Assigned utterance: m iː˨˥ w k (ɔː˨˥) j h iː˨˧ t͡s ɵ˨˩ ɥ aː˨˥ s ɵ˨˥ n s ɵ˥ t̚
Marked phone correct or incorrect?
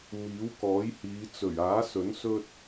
correct